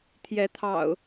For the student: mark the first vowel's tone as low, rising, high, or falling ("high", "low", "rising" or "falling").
rising